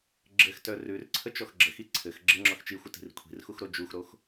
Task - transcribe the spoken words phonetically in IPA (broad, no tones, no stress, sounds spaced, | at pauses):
ɡ͡ǁ ɘ x t œ r ʉ r ǀʰ ə t͡ʃ ɔ x ɡ͡ǁ ə x i ǀʰ ɘ x ɡ͡ǁ ɘ ŋ͡ǁ ɔ x t͡ʃ i xʷ ə t i̤ r kʷʰ i̤ r x u x ɾ o d͡ʒ u x ɾ o x